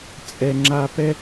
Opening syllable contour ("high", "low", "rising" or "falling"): low